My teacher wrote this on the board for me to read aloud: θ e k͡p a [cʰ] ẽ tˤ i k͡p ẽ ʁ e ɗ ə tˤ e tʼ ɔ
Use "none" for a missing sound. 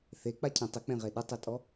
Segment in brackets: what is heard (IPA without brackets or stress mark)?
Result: cʰ